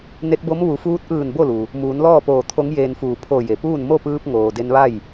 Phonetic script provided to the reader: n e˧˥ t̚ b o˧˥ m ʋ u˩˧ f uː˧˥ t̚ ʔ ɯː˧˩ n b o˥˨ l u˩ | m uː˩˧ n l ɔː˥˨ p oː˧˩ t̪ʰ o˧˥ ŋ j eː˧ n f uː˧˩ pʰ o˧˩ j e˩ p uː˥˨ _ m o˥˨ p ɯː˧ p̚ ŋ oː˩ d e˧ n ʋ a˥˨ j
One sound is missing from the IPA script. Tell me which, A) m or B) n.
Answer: B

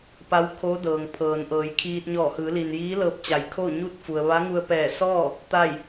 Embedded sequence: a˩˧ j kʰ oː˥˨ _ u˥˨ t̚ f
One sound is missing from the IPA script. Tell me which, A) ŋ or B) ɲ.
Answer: B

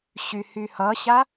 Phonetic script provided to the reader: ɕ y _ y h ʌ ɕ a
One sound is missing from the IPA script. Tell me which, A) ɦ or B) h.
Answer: B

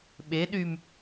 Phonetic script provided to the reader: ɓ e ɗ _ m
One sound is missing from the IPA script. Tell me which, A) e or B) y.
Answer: B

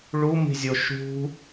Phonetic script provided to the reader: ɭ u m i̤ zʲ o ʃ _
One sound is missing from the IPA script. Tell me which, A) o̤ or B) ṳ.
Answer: B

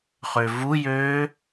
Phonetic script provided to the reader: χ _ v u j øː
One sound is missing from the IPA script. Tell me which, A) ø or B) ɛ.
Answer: A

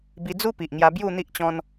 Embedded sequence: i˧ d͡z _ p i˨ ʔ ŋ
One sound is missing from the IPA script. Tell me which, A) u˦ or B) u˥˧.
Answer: A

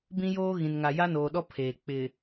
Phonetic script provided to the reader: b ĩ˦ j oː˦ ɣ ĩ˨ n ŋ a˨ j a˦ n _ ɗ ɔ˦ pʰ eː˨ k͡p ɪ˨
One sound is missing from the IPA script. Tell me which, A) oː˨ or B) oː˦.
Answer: A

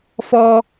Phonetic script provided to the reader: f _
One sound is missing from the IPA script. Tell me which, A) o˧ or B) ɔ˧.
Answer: B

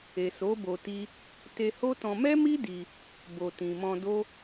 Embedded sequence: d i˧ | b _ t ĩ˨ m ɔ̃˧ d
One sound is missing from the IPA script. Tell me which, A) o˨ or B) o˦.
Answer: A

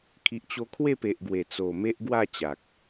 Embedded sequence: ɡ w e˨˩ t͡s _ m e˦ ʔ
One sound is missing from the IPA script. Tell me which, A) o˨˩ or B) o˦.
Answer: A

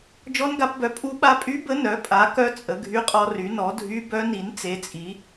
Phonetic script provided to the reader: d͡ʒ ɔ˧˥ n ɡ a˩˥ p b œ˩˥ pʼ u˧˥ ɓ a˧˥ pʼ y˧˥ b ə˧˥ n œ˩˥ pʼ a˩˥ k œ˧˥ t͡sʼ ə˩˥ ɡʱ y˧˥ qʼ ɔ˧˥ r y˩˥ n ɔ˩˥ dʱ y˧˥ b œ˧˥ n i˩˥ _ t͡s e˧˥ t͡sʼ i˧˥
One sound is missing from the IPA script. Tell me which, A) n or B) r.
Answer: A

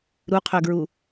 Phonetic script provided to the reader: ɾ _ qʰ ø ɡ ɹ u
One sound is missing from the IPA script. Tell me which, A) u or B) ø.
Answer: A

